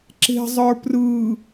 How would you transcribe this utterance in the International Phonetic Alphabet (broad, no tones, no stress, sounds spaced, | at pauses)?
ǁ e̤ zˤ ə˞ p r ɯː